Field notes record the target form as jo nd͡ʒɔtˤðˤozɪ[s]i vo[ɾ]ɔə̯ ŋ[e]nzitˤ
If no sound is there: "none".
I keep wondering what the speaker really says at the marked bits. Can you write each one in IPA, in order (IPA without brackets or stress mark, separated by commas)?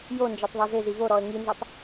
z, ɾ, i